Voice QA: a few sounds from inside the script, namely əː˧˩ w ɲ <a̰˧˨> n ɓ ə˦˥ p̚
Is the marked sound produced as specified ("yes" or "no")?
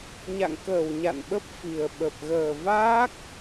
yes